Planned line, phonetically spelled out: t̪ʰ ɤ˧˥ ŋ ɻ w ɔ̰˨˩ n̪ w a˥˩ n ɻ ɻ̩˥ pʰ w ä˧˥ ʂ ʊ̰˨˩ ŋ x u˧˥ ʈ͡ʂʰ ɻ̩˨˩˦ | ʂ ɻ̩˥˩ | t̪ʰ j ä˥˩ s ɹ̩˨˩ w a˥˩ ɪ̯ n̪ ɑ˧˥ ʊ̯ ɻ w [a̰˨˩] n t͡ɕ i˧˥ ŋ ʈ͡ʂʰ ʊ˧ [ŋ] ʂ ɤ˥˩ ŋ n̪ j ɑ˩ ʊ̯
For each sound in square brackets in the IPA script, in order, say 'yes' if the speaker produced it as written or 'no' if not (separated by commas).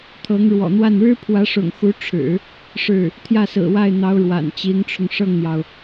yes, yes